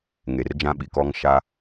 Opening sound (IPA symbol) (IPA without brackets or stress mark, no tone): ŋ